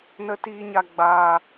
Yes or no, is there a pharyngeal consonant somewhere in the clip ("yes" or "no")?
no